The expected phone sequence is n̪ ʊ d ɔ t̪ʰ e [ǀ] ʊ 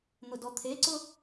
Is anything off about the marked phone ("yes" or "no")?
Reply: no